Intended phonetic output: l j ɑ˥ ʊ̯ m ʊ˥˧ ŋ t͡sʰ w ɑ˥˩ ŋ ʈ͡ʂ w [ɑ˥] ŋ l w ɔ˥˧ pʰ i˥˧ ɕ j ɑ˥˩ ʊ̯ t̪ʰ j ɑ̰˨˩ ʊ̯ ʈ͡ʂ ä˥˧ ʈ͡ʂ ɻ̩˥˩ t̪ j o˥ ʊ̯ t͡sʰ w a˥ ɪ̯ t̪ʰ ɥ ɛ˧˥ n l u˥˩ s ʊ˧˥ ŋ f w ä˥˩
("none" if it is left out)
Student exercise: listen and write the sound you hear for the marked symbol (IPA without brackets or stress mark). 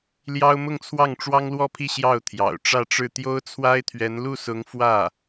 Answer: ɑ˥